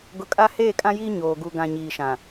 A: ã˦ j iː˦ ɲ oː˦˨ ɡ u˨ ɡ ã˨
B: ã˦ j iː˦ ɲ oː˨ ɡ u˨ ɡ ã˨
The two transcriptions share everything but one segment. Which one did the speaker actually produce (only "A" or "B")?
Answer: B